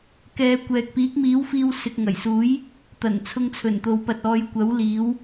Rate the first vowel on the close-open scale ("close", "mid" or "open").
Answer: mid